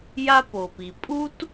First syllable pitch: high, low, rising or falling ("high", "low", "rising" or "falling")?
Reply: high